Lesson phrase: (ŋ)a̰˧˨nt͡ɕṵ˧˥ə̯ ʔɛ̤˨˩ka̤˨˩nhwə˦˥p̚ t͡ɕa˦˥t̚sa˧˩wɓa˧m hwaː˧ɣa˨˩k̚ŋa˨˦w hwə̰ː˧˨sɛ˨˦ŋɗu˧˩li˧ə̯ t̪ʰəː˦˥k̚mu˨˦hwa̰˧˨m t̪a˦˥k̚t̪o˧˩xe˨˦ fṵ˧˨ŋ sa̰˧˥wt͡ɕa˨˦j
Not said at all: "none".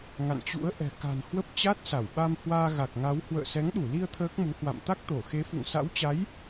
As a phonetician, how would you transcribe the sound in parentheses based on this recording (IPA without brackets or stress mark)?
ŋ